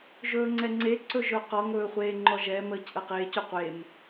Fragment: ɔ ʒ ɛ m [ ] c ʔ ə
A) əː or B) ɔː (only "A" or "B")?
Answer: A